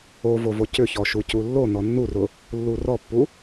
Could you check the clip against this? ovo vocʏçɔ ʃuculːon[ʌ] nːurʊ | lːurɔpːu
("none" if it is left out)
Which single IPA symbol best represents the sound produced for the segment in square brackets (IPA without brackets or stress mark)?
ɔ